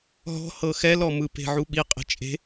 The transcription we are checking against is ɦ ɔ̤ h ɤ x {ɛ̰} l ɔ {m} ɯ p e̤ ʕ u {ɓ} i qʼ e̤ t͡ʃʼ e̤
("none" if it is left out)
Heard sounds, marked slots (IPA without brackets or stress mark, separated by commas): ɛ, m, ɓ